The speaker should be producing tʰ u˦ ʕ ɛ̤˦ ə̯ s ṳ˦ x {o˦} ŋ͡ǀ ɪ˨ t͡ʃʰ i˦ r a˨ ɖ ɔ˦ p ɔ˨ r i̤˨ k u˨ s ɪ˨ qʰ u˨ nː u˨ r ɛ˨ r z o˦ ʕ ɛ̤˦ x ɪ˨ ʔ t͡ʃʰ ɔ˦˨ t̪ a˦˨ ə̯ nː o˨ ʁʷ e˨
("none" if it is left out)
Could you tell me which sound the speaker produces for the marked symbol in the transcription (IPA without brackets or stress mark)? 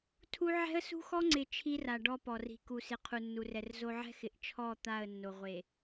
ɔ˦